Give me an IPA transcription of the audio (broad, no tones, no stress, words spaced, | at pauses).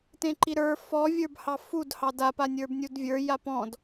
tẽǃiɾə˞ fɔ vʲə˞bhɑfud hɑda panʲə˞bnʲudvʲə˞ japɔ̃d